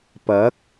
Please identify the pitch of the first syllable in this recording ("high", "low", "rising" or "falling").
rising